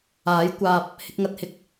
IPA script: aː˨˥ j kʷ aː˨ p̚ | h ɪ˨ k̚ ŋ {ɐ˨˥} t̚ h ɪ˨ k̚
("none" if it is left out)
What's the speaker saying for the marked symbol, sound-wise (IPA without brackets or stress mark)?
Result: ɐ˨